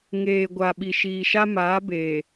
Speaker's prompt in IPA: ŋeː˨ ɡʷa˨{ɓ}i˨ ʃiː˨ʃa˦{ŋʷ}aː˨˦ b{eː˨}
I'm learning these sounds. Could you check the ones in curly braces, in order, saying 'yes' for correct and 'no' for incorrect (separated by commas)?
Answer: yes, no, yes